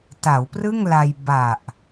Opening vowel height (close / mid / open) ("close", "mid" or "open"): open